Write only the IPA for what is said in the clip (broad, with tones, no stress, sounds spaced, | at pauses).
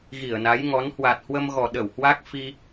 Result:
ɣ i˧˩ ə̯ n a˨˦ j ŋ ɔ˨˦ n h w a˨˩ t̚ h w ə˧ m ɣ ɔ˨˩ ɗ ə˧˩ w h w a˦˥ k̚ f i˧